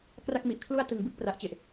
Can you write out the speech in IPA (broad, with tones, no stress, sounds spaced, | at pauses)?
k r a˥˩ k̚ m i˨˩ ʔ kʰ l u˥˩ a̯ t ɯ˨˩ ŋ b ɯ˥˩ k̚ p r a˨˩ ʔ t͡ɕ e˨˩ ʔ